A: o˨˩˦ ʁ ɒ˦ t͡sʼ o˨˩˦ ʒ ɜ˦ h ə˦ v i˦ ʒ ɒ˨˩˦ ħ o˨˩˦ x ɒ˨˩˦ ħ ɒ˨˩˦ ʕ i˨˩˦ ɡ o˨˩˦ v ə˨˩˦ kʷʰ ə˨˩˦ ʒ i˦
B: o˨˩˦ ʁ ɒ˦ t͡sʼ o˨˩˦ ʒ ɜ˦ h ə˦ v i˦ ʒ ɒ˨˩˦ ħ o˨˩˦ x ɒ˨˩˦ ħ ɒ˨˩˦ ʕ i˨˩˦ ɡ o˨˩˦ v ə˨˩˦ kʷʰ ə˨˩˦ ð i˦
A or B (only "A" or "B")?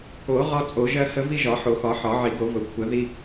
B